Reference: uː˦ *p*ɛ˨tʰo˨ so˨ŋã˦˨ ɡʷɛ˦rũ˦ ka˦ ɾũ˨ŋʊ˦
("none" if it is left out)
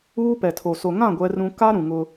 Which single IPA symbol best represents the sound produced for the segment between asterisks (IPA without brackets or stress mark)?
p